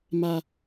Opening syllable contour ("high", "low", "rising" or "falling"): low